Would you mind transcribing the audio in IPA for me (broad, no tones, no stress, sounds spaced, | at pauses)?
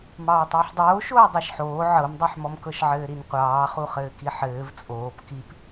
m ɑː tˤ ɘː ħ dˤ oː ʃ oː dˤ ɑ ʃ ħ oː ʕ ɤ m dˤ i ħ m ɔ m k ɤ ʃ ʕ ɘː ɾ i n qʷ ɑː χ u χ ɘː k i ħ ɘː v t͡sʼ oː p k i p